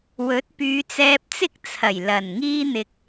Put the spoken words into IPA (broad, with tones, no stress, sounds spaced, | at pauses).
w ɵ˨˥ t̚ p yː˨˧ t͡s ɛː˧ p̚ t͡s ɪ˥ k̚ t͡sʰ ɐ˨˩ j l ɐ˨˩ n ŋ iː˧ n̪ ɪ˨ k̚